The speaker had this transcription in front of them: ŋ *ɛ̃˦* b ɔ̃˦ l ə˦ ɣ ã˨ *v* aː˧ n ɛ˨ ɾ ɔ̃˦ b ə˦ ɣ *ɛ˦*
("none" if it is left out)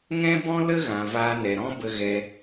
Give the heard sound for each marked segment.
ɛ̃˦, v, ɛ˦

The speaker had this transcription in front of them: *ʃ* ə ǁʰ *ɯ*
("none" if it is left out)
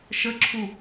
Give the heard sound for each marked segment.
ʃ, u

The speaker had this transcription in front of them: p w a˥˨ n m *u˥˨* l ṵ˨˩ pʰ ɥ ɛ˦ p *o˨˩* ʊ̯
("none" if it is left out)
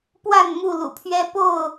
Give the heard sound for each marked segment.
u˥˨, o˥˨

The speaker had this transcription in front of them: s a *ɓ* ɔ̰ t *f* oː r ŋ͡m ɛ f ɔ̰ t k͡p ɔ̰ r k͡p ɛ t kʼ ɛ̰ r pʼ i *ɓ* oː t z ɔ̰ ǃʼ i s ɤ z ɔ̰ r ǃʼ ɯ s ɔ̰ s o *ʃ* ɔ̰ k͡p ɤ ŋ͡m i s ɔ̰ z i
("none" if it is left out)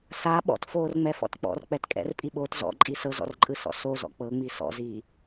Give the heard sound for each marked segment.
ɓ, f, ɓ, z

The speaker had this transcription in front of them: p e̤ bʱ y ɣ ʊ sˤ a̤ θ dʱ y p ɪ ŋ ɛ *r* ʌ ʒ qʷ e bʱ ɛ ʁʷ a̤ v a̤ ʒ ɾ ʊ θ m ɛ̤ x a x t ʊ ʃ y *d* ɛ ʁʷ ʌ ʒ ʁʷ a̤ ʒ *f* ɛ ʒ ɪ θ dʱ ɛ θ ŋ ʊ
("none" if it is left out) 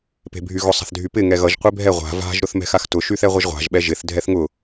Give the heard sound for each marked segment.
ɣ, θ, ɓ

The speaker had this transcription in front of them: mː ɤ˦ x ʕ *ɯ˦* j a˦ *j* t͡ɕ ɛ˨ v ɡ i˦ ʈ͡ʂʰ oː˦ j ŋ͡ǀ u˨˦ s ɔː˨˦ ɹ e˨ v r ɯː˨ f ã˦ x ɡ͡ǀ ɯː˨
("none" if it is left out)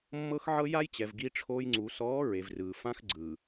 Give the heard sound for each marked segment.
ɤ˦, j

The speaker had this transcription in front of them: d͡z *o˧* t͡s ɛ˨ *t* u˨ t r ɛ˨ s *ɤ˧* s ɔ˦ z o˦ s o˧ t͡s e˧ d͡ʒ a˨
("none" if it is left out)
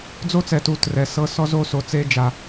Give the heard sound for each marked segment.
o˦, t, ɤ˧

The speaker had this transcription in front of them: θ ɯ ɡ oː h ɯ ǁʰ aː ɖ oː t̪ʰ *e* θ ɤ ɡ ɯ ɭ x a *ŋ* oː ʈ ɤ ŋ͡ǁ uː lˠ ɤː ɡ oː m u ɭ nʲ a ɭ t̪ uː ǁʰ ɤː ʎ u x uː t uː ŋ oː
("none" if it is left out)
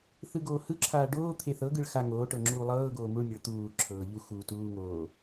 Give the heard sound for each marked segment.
e, ŋ

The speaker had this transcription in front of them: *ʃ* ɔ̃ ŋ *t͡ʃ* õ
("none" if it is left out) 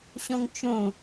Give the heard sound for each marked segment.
ɕ, t͡ʃ

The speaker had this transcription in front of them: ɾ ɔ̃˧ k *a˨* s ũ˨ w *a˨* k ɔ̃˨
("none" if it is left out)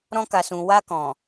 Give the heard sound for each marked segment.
a˨, a˧

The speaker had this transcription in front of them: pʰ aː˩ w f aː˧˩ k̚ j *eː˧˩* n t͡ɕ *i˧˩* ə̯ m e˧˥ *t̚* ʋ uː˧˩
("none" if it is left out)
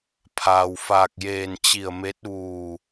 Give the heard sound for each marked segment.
eː˧˩, i˧˩, t̚

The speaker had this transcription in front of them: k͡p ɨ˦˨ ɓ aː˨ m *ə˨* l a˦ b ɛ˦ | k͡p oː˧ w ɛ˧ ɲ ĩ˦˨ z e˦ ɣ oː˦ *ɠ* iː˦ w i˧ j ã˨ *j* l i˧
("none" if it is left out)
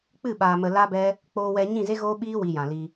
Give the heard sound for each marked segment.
ə˨, ɓ, none

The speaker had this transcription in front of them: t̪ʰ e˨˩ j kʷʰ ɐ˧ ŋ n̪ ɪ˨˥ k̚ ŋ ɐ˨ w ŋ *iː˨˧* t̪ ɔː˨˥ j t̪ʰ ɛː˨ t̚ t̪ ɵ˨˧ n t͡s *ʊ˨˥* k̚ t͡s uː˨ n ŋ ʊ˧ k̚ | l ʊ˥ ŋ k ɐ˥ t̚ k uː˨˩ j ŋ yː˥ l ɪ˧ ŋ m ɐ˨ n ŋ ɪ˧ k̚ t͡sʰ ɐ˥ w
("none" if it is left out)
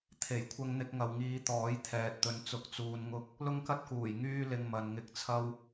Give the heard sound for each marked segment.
iː˨˧, ʊ˨

